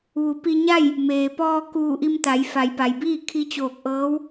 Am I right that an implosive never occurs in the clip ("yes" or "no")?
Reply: yes